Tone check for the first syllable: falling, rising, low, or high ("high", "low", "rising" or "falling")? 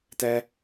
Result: high